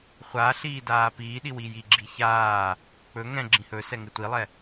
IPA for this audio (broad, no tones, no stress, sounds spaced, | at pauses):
χʷ a ɬ iː d aː p iː ɗ i w i j i ɡ͡ǁ i ç aː | k͡p ɵ ŋ ɛ̃ ɡ͡ǁ ĩ h ɵ s ɛ ŋ ɪ tʷ i lˠ ɛ